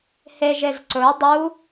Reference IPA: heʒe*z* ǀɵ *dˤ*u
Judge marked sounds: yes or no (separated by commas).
yes, yes